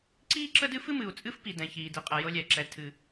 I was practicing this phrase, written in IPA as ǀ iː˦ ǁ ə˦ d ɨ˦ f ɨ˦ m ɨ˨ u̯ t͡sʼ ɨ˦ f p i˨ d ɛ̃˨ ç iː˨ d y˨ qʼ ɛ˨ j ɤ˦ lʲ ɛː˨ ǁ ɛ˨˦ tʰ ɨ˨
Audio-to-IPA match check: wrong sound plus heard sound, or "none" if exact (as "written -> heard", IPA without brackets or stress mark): y˨ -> i˨